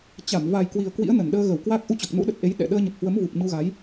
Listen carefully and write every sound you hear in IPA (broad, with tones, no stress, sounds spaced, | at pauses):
t͡ɕ a˧˩ m v a˨˩ j k w i˨˩ ə̯ k w ḭ˧˥ ə̯ n ə˧˩ n ɗ əː˧ ɣ ə˧˩ w k w a˦˥ k̚ ʔ u˧ t͡ɕ ɔ˨˩ k̚ n ṵ˧˥ ɗ ə˨˩ t̚ ʔ e˨˦ j ɗ ɛ̰˧˨ ɗ əː˧ ɲ ə˨˩ p̚ h w ə˨˦ m v u˨˩ p̚ ɲ u˧ ɣ a˨˦ j